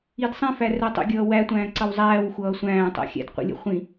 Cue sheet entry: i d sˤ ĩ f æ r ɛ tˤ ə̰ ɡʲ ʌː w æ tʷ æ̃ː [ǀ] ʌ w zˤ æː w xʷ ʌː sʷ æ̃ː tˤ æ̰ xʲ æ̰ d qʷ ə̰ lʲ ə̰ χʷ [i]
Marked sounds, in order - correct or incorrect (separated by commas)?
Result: correct, incorrect